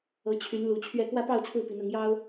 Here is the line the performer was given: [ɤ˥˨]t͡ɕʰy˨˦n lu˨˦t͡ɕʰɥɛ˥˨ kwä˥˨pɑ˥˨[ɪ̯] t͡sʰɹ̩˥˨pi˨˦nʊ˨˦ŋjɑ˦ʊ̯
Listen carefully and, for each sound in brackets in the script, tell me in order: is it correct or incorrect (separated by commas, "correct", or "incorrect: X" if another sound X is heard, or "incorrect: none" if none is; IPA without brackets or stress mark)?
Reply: incorrect: ɤ˨˦, incorrect: ʊ̯